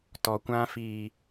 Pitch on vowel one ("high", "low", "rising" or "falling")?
low